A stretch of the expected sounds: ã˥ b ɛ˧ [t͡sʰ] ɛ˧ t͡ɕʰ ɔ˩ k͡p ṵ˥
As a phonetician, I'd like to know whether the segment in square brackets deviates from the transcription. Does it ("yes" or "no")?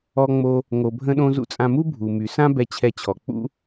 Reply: yes